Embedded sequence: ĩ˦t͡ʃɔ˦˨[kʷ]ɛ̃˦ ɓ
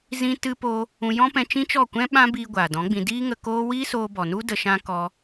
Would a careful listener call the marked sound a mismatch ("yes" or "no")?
no